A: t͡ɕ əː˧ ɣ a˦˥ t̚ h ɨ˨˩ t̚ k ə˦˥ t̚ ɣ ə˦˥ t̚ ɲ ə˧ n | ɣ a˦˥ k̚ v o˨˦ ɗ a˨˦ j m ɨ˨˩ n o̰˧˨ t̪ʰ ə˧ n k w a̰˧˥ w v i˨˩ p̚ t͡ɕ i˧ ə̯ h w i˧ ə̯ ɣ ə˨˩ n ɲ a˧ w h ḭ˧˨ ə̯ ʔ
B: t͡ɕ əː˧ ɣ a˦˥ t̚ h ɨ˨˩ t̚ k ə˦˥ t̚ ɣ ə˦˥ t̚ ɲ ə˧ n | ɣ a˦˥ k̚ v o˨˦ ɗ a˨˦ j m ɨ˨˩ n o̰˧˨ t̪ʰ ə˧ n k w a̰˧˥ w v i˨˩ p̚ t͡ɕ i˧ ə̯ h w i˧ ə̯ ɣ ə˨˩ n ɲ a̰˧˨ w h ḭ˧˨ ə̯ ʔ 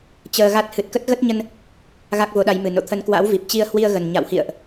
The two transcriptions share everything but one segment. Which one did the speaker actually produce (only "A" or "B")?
B